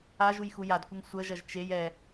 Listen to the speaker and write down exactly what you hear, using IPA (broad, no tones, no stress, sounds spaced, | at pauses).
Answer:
a ʒ u j x u j a d kʷ ə ŋ sʷ ə ʒ ɐ ʒ t͡ʃ e j ɛ